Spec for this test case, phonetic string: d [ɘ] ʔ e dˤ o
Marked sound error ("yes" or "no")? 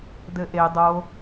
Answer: no